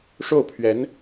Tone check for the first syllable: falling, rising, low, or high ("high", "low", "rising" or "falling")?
falling